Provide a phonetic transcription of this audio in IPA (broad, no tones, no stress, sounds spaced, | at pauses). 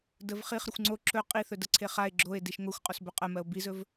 d ə v χ i χ ɾ ə xʷ ŋ͡ǀ o ǁ ɵ qʼ i θ ɵ d ə ǀʰ e χ a e̯ ɡ͡ǁ o e̯ d i ʃ ŋ o xʷ qʼ o s b ɵ qʼ ɜ m ɜ o̯ b i z ɵ v